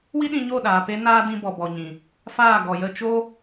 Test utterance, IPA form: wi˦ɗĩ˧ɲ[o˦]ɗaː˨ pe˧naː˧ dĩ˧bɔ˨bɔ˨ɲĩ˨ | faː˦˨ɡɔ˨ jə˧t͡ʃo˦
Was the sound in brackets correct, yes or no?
no